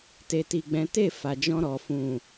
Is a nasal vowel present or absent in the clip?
present